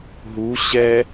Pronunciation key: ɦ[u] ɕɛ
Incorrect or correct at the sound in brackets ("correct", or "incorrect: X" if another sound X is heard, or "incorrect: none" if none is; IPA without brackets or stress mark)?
correct